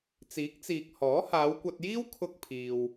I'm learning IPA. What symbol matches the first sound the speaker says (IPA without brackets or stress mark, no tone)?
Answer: t͡s